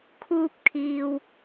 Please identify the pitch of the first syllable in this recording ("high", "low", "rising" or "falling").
high